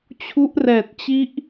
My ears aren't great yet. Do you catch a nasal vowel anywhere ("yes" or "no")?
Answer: no